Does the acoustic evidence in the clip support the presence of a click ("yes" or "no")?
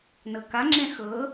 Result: yes